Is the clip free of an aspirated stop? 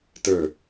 yes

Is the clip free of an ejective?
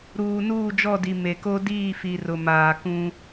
yes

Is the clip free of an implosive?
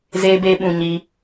no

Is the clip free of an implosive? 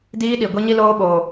no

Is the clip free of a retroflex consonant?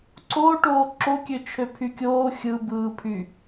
no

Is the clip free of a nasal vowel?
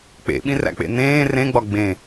no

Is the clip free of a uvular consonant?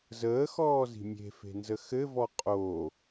no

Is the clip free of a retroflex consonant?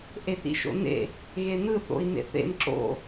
yes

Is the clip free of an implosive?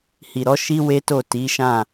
yes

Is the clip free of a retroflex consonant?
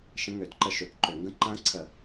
yes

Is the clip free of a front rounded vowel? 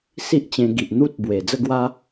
yes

